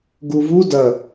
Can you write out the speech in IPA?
ɡ u v u d ɐ

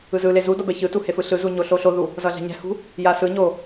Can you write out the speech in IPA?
ɯ z ɯ l e z u d ʌ b ɛ ç ɯ t u h e f ɯ ɬ ɯ z u ɲ o ɬ o ɬ o ð u | z ʌ ɮ ɛ̤ ɲ ɛ̤ h ṳ | j a s ɯ ɲ o

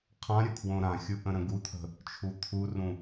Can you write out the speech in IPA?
qʰ ã ɾʲ ə kʰ w õ ɾ ã xʲ u ʔ ə̃ ɾ ə̃ ɡ u t̪ʰ ə̤ | t͡ʃʰ u t̪ʰ u r ũ

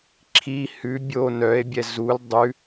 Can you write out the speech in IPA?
ǁʰ i h ʉ bʲ o n œ e̯ bʲ ɛ z u l dˤ ʉ

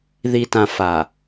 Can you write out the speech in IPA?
ð i˨ t ã˨ f a˨

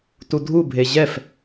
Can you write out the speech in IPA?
t u dʱ u bʱ e ʑ ɛ f

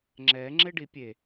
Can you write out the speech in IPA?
ŋ͡ǁ ɛ ŋ͡ǁ e ɖ i pʲ e

